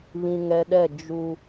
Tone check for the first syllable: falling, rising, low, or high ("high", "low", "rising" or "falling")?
low